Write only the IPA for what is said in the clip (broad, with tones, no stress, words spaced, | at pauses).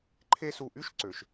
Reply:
ǃʰe˦su˧˩ ʔy˦ʃǀø˩ʃ